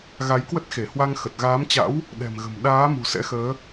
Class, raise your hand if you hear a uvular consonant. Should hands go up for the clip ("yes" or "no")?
no